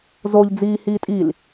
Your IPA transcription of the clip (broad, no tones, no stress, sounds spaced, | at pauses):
z o ʎ d͡z iː h iː tʼ i l